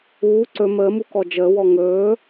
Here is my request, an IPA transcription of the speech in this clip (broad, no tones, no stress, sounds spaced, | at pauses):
uː ǀ ɵ m əː m u k ɔ d͡ʒ əː w ɔ ŋ ɵː